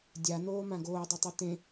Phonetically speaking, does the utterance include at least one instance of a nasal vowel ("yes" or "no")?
yes